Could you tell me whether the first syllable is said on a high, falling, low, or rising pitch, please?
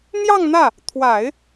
falling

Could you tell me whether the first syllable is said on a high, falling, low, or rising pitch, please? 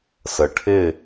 low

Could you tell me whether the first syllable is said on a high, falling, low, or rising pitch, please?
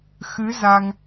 rising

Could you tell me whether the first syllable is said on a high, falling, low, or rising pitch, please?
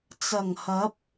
low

